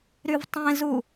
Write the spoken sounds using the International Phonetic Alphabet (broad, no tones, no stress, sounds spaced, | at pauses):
ɾ y v tˤ ẽ z u